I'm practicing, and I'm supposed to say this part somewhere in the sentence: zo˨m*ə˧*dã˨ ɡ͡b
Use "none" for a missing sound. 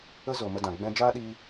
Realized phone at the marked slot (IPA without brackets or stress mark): ə˧